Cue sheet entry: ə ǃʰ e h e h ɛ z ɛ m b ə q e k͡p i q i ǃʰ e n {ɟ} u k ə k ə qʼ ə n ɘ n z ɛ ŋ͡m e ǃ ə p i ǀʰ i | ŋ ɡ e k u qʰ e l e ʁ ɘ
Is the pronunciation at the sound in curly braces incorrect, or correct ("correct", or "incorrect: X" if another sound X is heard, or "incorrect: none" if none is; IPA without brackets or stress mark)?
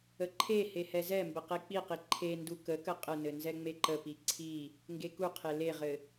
incorrect: d